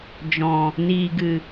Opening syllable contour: low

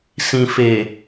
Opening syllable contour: low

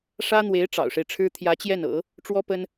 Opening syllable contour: high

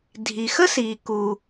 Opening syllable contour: low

